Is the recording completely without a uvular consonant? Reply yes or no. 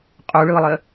no